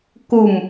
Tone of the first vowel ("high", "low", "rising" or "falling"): falling